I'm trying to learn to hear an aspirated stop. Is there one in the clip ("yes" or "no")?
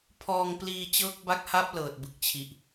yes